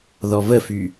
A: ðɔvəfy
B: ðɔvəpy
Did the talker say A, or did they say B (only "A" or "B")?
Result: A